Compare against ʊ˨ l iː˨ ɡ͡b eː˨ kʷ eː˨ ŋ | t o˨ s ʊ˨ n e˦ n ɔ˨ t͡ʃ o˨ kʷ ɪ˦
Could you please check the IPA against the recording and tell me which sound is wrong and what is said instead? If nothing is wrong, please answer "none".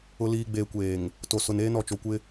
e˦ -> eː˦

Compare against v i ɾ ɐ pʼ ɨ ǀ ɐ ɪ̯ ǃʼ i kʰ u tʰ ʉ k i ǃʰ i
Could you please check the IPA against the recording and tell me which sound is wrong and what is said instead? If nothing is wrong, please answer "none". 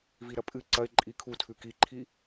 none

